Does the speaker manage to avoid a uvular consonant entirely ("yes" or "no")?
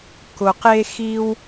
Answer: no